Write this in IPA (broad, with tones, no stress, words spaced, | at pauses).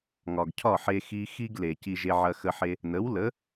ŋɒ˩ɡcʰɒ˥˩ħe˧ xi˧ xi˥ɡle˩ ci˧ʒe˧ʕɐ˧ xə˧ħe˧ | nə˩˥wlə˩˥